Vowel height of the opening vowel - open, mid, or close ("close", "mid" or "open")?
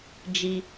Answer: close